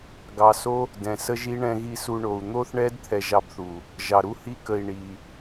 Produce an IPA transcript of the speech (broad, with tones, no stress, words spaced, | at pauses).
ɡɑ˨so˦ | dɛ̃˨sə˦ʒi˦ ɳɛ̃˧ɣi˧su˧ɳo˨u̯ n̪o˦θɳɛ˦d t̪ʰɛ˧ʒɑ˧bθu˨ | ʒɑ˨ɾu˦hi˦kə˧i̯ ɳi˧